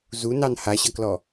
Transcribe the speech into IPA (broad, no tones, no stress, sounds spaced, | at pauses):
z u n ɑ n h a ɕ ʌ k l ɔ